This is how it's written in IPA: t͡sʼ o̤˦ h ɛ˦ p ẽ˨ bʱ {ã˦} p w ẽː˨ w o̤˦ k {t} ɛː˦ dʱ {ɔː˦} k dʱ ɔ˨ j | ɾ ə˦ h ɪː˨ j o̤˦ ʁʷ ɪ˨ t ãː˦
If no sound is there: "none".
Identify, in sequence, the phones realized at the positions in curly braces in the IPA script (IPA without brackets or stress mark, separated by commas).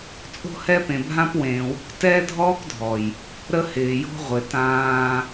ã˦, t, ɔː˦